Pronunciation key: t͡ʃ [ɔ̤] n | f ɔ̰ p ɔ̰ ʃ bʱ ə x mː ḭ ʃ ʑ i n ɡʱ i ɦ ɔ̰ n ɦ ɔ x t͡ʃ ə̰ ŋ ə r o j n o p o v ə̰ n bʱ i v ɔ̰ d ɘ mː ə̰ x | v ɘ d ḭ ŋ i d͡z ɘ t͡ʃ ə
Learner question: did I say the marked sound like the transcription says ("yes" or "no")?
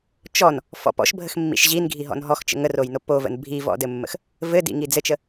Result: no